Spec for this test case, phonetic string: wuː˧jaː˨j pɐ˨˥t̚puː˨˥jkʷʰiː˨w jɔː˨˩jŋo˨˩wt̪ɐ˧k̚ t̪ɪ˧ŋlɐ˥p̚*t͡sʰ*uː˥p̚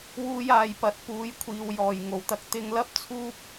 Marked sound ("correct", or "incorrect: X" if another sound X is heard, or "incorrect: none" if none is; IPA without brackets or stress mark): correct